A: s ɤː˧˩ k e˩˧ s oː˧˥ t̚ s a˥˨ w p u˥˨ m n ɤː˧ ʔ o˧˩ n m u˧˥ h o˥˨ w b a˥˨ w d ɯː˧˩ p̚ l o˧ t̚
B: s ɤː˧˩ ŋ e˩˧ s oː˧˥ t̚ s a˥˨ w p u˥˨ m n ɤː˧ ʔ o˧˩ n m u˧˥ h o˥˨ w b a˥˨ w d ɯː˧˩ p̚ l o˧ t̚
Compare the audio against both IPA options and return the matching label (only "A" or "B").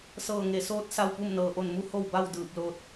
B